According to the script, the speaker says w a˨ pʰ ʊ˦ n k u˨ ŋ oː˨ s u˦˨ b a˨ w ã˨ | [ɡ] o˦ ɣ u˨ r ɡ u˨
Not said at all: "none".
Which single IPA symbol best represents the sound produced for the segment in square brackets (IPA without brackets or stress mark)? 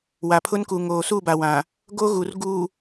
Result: ɡ